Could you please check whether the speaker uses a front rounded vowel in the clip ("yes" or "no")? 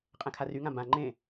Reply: yes